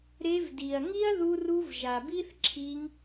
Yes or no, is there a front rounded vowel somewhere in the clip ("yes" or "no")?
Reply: no